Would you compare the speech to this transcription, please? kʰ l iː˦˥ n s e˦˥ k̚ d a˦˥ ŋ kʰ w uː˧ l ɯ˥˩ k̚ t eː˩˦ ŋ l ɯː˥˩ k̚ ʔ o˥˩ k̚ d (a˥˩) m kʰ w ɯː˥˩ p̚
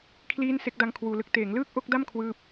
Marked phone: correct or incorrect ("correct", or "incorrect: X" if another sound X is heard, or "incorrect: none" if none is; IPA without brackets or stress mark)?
correct